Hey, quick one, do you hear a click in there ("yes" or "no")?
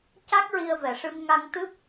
no